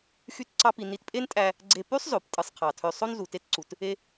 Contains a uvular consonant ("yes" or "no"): yes